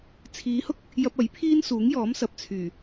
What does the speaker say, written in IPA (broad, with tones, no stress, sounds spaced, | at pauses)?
t͡sʰ iː˨˧ h ʊ˥ k̚ | j ɐ˧ p̚ ɐ˨˥ j pʰ iː˥ n s uː˨˥ ŋ j ɔː˨˥ m s ɐ˨ p̚ t͡sʰ yː˨˩